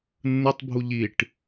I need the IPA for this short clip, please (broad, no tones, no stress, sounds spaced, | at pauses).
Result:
nː ɯ tˤ bʱ u ʎ i ʈ